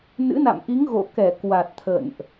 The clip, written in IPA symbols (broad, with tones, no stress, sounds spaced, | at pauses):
n ɨ̰˧˥ n a̰˧˨ m ʔ i˨˦ ŋ ɣ o̰˧˨ k ɛ˧˩ k w a˨˩ t̚ t̪ʰ ə̰˧˨ n ʔ